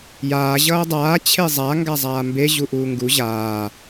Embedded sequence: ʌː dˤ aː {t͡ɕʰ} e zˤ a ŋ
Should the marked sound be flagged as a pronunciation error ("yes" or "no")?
no